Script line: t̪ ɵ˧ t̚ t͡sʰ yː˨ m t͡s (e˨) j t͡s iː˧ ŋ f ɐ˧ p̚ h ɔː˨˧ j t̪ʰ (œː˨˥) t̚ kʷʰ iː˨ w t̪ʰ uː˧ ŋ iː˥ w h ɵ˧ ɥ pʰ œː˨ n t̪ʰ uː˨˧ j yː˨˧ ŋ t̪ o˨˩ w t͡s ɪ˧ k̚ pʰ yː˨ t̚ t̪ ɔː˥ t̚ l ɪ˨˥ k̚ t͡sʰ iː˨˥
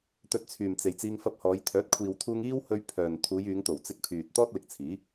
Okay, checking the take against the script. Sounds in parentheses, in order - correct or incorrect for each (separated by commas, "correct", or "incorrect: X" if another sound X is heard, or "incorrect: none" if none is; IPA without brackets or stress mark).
correct, correct